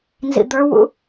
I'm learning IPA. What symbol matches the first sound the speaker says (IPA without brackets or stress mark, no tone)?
n